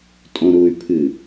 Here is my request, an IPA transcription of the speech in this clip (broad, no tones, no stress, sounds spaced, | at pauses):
tʼ õ ɾ u y̯ pʰ ɨ